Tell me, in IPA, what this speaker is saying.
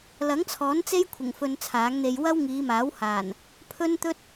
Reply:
l ɐ˨˥ ŋ t͡sʰ ɔː˨˥ n t͡s e˥ j kʷʰ ɪ˨˩ ŋ f ɵ˧ n t͡sʰ aː˨˥ ŋ n̪ e˧ j w ɐ˥ w ŋ iː˨˧ m aː˨˥ w h aː˨˩ n | pʰ ɵ˥ n t̪ ɵ˥ t̚

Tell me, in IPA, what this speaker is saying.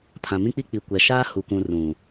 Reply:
pʰ ã˨ m ĩ˦ k͡p i˦ k͡p i˨ kʷ ɛ˨ ʃ aː˦ h u˨ kʷ ũ˨ r ũ˨

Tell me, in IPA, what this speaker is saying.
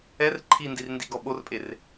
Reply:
ɛ r ǃʰ i n d i r n d i ɡ ɔ ɓ o r pʼ e r

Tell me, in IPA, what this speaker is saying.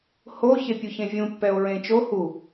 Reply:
h o ç e pʲ u ç ẽ vʲ ũ pː ɛ o̯ ɹ ẽ t͡ʃ o h u

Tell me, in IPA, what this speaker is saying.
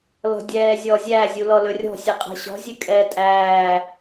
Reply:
l ɔ̤ dʲ ɛː zʲ ɔ zʲ æ zʲ u l ɔ l ɵ rʲ ɔ̤ sʲ ɛ qʼ ɛ̤ ɕ ɔ̤ zʲ ʉ kʼ ɛː tʼ æː

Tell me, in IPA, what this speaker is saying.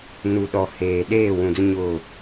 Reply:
n u˨ ɗ ɔ˨ h eː˨ ɗ eː˦˨ w ũ˨ d ʊ˦ ɲ ʊ˦˨

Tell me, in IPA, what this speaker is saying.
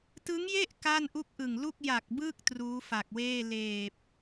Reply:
t ɯ˦˥ ŋ j e˥˩ ʔ k aː˥˩ n ʔ u˥˩ k̚ ʔ ɯ˨˩ ŋ l u˥˩ k̚ j a˨˩ k̚ b ɯː˥˩ k̚ t r uː˦˥ f a˨˩ k̚ w eː˥˩ l eː˨˩ p̚

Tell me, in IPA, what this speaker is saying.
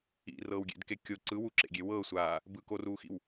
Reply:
ḭ r ɤː w ɡʲ ḛ d k e kʲ o ǀ ɯ w u ǁ ḛ ɡʲ e w ɤ sʷ aː | b ɯ k o r uː x ḭ w

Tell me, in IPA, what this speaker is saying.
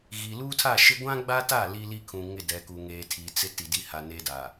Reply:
ɣ i˨ l uː˦ tʰ a˦˨ ʃ ɪ˦ ɡʷ ã˦ ɡ͡b a˦ t a˦˨ l i˦ l i˦ kʰ ũ˨ ŋ ɪ˦˨ d ɛ˨ k u˨ ŋ eː˨ tʰ i˨ t͡s ɪ˦ t i˨ d i˦ h a˨ n e˦ d a˨

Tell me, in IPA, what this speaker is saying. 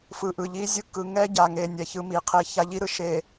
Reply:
f ɯ˨ ʔ ɯ˨ ʎ i˦ zʲ ɯ˦ k ɯ˨ ŋ ɛ˦ ɟ a˨ ŋ e˨ nʲ ɛ˨ ç ɯ˦ m i˨ qʰ e˦ ç a˦ ʎ i˦ ɾ ɯ˦ ʃ e˨

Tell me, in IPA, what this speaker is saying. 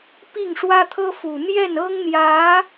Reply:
p i˥˩ ŋ ʂ w ä˥ t̪ʰ ɤ˥ f u˨˩ n̪ j ɛ˥˩ n ɤ˥ ŋ n̪ j ä˧˥

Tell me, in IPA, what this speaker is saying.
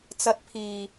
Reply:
t͡s ɐ˨˥ t̚ pʰ iː˨˩

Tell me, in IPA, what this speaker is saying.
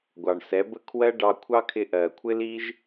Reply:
ɡʷ ɑ˨ ɳ s ɛ˨˦ b ə˦ kʰ w ɜ˦ ɖ ɑ˧ kʷʰ ɑ˦ kʰ ɪ˧ ʔ ɜ˨ kʷʰ ɪ˦ l i˦ ʒ

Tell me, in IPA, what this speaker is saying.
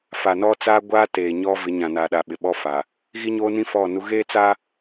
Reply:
f a˨ n ɔ˦ t͡s aː˦ ɡʷ aː˦ t eː˨ ɲ ɔ˦ v ɪ˨˦ ɲ ã˨ n a˨ ɗ a˨ ɓ ɪ˨ ɓ ɔ˦ f a˨ | ɣ i˦ ɲ oː˦ n ĩ˦ f ɔ˦˨ n u˦ ɣ eː˦ t͡s a˦

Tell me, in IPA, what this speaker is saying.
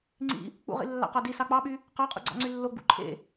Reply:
ŋ͡ǀ ḭ | k͡p ṵ ʁ ḭ lː ɑ̰ q ɑ d i s ɑ k͡p ɑ ɓ y | q ɑ qʼ ṵ ɡ͡ǀ ɑ̰ ŋ͡ǀ y lː o ɡ͡b ṵ ǃʰ ḛ

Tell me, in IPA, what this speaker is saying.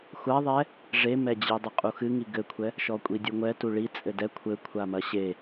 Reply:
xʷ a ðˤ ɛ | ʐ e m ɛ d͡ʑ i dˤ ɘ qʼ u x ɨ ŋ i ɡ ɘ kʷʰ ɛ | ʃ ɔ kʷʼ i dʲ u ŋʷ ɛ t u ɭ i t͡sʼ ɘ d ɛ kʷʰ ɘ kʷʰ a m ɐ ɕ e

